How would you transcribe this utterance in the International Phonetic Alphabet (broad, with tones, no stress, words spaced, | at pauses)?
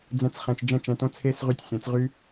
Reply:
d͡zɛ̃˧t͡s χɛ̃˧t͡ʃd͡ʒɛ̃˦˨t͡ʃɛ̃˧tõ˦ t͡sʰeː˦sʁy˧tʲsʲɛ̃˨˦t͡s ʁy˦